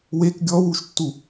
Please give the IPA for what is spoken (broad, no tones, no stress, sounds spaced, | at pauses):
w e k ɡʲ ɔ w u ʃ tː u